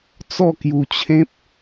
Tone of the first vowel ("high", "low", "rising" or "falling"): falling